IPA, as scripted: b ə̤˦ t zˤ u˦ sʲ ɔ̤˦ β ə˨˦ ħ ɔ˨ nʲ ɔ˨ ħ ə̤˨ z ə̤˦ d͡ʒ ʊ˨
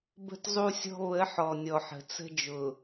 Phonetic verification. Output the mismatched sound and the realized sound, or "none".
z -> t͡s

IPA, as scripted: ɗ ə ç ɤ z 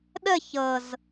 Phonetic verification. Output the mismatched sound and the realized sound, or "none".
none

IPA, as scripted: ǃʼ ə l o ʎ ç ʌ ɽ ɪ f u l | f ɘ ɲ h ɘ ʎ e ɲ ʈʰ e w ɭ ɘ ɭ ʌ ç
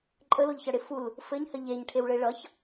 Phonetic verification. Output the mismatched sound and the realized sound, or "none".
none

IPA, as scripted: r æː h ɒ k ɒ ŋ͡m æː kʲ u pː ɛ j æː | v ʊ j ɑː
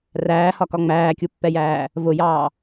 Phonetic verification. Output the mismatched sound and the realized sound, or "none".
none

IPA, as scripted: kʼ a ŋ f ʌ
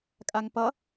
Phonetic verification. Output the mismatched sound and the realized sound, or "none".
f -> p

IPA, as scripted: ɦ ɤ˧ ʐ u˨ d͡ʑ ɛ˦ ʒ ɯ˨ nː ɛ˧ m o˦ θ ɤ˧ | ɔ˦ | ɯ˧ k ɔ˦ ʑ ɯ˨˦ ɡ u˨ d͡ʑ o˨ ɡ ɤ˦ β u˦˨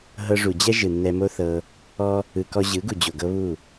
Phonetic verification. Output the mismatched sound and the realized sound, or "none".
none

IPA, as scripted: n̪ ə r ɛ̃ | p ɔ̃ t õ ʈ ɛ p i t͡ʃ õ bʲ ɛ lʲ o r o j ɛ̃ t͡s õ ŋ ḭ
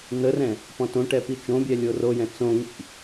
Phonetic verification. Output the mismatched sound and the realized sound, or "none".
none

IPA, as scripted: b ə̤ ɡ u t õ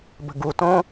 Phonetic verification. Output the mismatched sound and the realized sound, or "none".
none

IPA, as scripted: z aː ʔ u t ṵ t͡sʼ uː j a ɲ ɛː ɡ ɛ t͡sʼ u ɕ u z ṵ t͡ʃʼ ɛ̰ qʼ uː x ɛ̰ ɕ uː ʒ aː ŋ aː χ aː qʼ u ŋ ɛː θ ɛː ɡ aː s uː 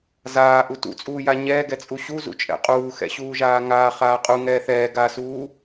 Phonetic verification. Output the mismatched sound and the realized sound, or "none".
none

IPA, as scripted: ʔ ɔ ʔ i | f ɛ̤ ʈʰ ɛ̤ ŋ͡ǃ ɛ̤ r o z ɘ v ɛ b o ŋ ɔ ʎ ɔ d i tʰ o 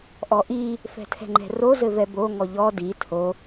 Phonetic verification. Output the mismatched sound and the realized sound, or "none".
ʈʰ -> tʰ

